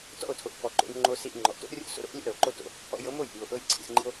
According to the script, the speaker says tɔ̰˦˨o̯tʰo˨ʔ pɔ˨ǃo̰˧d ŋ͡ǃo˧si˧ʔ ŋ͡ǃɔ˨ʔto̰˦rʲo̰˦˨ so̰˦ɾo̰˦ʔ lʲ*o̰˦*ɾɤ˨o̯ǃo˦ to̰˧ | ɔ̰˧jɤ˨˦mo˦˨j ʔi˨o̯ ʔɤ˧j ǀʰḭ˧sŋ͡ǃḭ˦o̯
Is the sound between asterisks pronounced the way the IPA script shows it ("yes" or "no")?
yes